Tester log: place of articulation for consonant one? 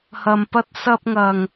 glottal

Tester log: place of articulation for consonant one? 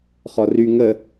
uvular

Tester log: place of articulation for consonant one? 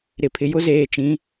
alveolar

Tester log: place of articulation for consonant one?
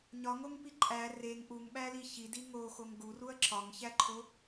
palatal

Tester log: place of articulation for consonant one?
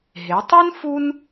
glottal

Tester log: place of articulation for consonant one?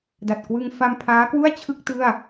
alveolar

